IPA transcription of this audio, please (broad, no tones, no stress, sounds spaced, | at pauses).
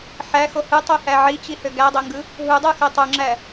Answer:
ħ æ x o h ɯ tˤ y h æ ʕ i t͡ɕ i h ø ɡ æ dˤ ø ŋ ɡ ɯ | ɦ u dˤ ɯ x ø tˤ u ŋ͡ǁ æ